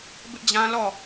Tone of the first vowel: high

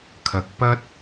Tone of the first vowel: rising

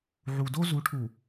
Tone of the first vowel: low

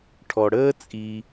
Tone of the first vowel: low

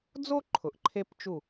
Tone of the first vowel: high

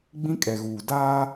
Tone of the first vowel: high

